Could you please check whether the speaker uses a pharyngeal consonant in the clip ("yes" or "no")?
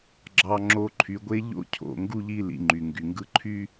no